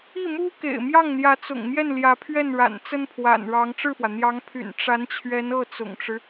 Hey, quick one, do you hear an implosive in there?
no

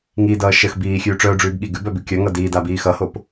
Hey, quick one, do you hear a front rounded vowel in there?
yes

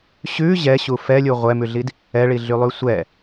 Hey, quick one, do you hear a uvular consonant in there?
yes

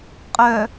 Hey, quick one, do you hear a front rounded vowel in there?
yes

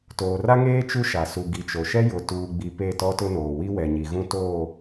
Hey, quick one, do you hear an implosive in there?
no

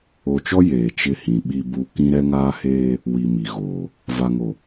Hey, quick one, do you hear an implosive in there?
yes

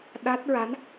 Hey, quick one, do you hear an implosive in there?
yes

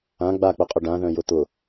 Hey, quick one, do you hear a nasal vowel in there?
yes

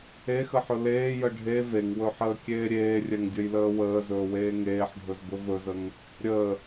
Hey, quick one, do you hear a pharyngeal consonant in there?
yes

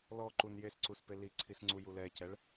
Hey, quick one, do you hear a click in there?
yes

